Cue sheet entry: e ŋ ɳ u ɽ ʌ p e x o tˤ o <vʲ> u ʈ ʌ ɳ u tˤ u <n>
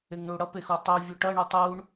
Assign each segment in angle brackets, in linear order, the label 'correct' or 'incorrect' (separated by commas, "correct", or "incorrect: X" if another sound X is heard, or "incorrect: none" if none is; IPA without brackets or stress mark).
correct, incorrect: ɳ